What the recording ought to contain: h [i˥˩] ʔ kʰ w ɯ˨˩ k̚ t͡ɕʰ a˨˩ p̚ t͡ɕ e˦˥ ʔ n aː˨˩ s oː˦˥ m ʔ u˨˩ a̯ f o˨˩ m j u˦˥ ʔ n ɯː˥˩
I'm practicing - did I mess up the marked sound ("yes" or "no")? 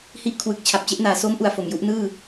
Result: no